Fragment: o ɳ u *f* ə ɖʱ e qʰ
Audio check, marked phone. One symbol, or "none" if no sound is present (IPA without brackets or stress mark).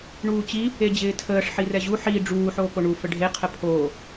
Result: f